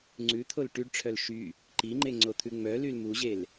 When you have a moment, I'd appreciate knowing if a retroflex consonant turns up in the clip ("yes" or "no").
yes